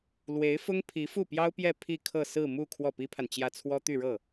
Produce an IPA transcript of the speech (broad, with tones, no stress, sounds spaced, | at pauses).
l w e˧˥ ɪ̯ f ʊ˥ ŋ pʰ i˧˥ f u˥˩ p j ɑ˥ ʊ̯ p j ɛ˥˧ pʰ i˥˧ kʰ ɤ˥˧ s ɹ̩˥˧ m u˥˧ kʰ w ɔ˥˩ p i˥ pʰ a˨ n t͡ɕ j ä˥˩ t͡sʰ w ɔ˥ t̪ y˥˧ ɻ ɤ˥˩